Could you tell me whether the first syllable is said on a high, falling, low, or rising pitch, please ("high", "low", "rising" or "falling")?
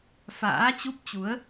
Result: rising